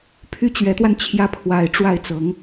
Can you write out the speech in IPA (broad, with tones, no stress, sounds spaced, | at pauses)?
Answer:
pʰ y˥˩ t͡ɕ ɥ ɛ˧˥ t̪ w a˧ n t͡ɕʰ j ä˥˩ pʰ w a˧˥ ɪ̯ ʈ͡ʂ w a˥˩ ɪ̯ t͡s ɤ˧˥ ŋ